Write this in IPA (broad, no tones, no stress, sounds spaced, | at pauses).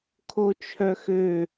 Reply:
kʰ o t͡ʃʰ œ x ø